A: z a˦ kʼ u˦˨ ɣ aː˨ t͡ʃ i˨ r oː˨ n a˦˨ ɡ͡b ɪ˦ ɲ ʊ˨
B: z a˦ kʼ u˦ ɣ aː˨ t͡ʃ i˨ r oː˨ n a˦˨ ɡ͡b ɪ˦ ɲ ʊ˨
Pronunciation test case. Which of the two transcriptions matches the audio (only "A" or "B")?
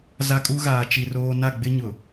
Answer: B